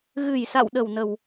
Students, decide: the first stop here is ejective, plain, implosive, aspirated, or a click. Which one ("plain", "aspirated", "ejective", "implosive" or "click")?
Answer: implosive